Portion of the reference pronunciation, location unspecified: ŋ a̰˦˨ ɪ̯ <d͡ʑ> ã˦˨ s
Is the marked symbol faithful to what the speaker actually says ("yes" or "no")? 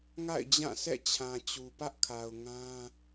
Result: yes